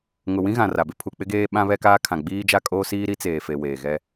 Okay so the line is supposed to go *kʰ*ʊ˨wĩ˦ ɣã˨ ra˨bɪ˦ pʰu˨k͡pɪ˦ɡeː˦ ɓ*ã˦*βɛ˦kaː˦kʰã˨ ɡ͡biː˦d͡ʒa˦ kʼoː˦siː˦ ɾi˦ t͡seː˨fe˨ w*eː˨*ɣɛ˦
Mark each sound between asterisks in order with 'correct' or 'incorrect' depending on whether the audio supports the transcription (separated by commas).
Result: incorrect, correct, correct